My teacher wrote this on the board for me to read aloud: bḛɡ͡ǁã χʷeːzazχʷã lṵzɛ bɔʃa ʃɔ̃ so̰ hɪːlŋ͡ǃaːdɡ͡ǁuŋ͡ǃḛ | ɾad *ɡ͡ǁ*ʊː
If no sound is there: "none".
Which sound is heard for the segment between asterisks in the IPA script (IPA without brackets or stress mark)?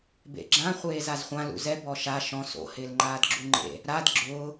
ɡ͡ǁ